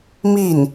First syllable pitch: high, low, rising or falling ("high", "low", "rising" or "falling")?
falling